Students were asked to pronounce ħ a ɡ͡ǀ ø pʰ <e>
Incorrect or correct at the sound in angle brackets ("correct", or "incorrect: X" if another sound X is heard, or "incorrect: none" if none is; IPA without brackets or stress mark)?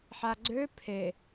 correct